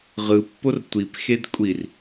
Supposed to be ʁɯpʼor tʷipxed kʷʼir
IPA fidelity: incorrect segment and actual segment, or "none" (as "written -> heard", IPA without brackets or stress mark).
pʼ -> pː